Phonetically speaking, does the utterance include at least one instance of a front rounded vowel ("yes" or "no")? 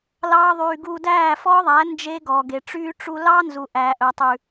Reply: yes